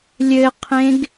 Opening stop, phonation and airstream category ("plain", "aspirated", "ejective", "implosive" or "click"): aspirated